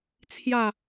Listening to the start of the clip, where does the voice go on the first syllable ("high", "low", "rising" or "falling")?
falling